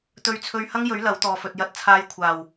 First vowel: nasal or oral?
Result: oral